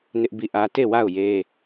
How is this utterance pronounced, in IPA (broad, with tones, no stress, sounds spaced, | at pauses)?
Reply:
n ɪ˦ ʔ b i˦˨ ʔ ä˦ t e˦˨ w a˦˨ ʊ̯ j e˦